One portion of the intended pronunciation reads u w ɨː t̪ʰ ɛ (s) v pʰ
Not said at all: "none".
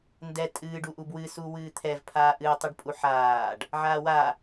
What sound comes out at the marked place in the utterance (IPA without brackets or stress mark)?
none